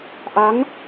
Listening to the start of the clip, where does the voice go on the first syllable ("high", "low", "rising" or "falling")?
rising